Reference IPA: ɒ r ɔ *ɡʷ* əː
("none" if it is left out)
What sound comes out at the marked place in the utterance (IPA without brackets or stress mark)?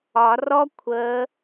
kʷʰ